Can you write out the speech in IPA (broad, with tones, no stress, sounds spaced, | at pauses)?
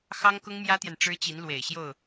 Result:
x ɑ˥ ŋ k ʊ˥ ŋ m j ä˥ t̪ j ɛ˨ n ʈ͡ʂ ɻ̩˥ t͡ɕ i˧˥ n l w e˨˩ ɪ̯ ɕ j o˥˩ ʊ̯